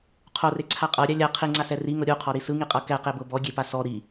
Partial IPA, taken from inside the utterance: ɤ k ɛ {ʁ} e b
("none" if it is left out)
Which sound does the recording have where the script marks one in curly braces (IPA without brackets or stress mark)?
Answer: q